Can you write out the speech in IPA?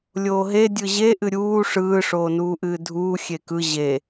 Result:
lʲ oː ɦ e dʲ ɯ ʑ e ʔ ɨ ɾʲ uː ʂ ɯː ʂ oː n uː ʔ ɨː dʱ uː xʲ e k ɯ ʑ e

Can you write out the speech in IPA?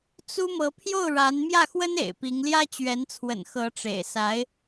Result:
t͡s u˥ m ɤ˧˥ pʰ j o˥˩ ʊ̯ ɻ a˧˥ n m j ä˥˩ x w ə˥ n ḛ˨˩ ɪ̯ p i˧˥ ŋ l j ä˥ t͡ɕ ɥ ɛ˧˥ n t͡sʰ w ə̰˨˩ n x ɤ˧˥ ʈ͡ʂ ḛ˨˩ ɪ̯ s a˧˥ ɪ̯

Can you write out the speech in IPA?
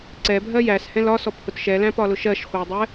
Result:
ǀ ɛ bʱ ɜ j æ s h ɛ̃ l ɒ s ɔ p h ʊ t ʃ ɛ l æ̃ p ɒ l ʊ ʃ ɜ ʃ χʷ æ dˤ ɛ

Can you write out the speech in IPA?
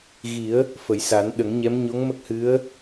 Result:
ɣ i˨˩˦ ə̯ | f ə˨˩˨ j s a˨˩˦ n ɗ ə˨˩˦ ŋ ɲ ɛ˧˥ m ɲ o˧˥ ŋ m ə˦˥ k̚ h ɨ˧˥ ə̯

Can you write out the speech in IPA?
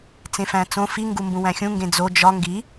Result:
t͡s ẽ f æ̃ t͡s õ f i ŋ ɡ u m b ũ w æ̃ xʲ ũ ŋ ɡ ẽ d͡z o d͡ʒ ɒ ŋ ɡ i

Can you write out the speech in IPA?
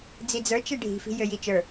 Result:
d͡z i d͡z ə˞ t͡ʃ e ɖʱ i̤ f i̤ j ø j i t͡ʃ ə˞

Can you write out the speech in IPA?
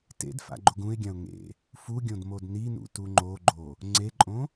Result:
t ḛ d f a̰ ɡ͡ǃ o ɡ ũ ɪ̯ ɡʲ ã ʊ̯ ŋ ḛ | f u ɡʲ õ d m o d n i n ṵ t u ŋ͡ǃ o ɡ͡ǃ o | ŋ͡ǀ e ǃʼ õ

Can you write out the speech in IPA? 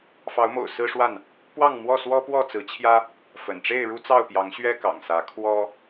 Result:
f ɑ˨˦ ʊ̯ m o̰˨˩ ʊ̯ s ɹ̩˦ ʂ w a˥˨ n | p w ɑ˥˨ ŋ m w ɔ˥˨ s w ɔ˦ p w ɔ˥˨ t͡s ɹ̩˨˦ t͡ɕʰ j ä˦ | f ə̰˨˩ n ʈ͡ʂ e˥˨ ɪ̯ ɻ u˦ t͡s ɑ˥˨ ʊ̯ p j ɑ˨˦ ŋ ɕ ɥ ɛ˦ k ɑ̰˨˩ ŋ s ä˨˦ kʰ w ɔ˦

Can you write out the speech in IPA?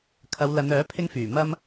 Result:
kʰ ɐ˨˧ w l ɐ˨˧ n œː˨˥ pʰ ɪ˥ ŋ f yː˨˩ m ɐ˥ m

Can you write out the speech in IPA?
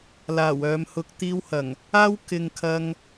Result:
l aː˨˩ w œː˨˧ m h ʊ˧ k̚ t̪ iː˥ w h ɐ˨˩ ŋ | aː˥ w k ɪ˨ ŋ kʰ ɐ˥ ŋ

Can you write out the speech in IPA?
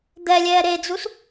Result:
d̪ ɛ lʲ ɛː ɾ e d͡z u s

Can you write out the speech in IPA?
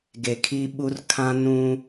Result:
ɡ e˨ kʰ i˦ ɓ u˦ r kʰ ã˦ n ũ˦

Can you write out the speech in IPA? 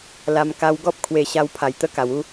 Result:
l a˧ m k a˧ w ɡ ɔ˦ p̚ kʰ w e˧ ɕ a˧ w pʰ a˨˩ j t̪ ə˦ k a˨˩ w u˦

